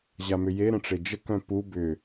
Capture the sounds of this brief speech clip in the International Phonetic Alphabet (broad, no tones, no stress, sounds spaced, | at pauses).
ʑ a m ʏ j e ɾ ə̃ ʈ͡ʂ e d͡ʒ ə k œ̃ p u b ʏ